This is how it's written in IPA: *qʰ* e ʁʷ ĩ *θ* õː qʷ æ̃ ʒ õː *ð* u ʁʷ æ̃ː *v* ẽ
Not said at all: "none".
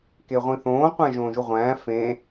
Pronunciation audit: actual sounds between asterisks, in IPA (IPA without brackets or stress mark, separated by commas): k, θ, ʒ, f